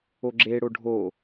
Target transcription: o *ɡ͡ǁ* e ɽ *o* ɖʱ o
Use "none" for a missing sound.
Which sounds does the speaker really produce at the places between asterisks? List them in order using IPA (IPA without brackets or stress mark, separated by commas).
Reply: ɡ͡ǁ, o